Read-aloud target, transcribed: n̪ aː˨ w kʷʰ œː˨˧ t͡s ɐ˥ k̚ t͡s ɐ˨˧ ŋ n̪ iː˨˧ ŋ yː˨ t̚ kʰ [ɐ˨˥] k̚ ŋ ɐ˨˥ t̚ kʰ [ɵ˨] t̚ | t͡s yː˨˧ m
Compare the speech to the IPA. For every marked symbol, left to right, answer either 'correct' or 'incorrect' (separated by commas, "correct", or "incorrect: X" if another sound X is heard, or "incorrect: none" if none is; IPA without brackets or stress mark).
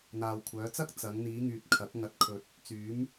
correct, correct